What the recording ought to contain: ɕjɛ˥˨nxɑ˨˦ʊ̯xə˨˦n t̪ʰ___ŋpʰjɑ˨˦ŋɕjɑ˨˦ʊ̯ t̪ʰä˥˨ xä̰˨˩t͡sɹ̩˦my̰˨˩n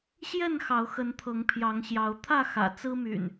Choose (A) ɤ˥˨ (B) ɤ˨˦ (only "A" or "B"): B